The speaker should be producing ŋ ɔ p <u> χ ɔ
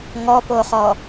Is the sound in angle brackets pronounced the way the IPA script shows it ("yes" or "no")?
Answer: no